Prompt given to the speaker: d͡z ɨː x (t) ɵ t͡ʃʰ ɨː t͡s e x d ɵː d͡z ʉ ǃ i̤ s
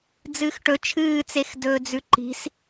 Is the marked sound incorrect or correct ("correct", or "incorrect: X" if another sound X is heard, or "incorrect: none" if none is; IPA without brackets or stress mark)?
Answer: incorrect: ʈ